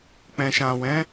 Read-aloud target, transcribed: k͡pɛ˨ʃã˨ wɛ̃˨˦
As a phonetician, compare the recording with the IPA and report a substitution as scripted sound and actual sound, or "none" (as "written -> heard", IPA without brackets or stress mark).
ɛ˨ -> ɛ̃˨